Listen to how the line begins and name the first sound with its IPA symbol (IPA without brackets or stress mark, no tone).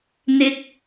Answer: n̪